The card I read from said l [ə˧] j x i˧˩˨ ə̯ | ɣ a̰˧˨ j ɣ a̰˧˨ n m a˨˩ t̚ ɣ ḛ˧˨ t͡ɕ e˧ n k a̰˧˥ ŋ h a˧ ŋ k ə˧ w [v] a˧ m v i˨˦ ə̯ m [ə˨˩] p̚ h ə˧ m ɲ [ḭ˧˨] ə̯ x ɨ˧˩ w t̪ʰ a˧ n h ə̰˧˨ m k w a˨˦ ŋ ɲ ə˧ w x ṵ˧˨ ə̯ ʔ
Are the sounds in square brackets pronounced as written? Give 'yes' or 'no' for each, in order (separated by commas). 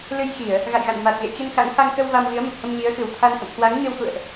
no, yes, yes, no